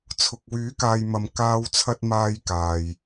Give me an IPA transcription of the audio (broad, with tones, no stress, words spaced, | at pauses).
t͡sʰʊ˨k̚wyː˨˥ kaː˧jmɐ˧m kaː˧wt͡sʰɐ˧t̚ maː˥jkaː˨j